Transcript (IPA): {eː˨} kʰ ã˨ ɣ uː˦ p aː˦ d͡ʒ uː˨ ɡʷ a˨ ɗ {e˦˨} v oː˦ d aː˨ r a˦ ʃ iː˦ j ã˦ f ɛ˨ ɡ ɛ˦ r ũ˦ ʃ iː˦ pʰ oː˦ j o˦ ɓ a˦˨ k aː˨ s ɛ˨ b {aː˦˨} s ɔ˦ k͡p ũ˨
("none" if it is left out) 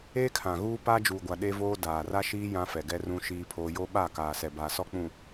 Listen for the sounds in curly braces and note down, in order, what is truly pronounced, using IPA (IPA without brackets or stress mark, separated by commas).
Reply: eː˦, e˦, aː˨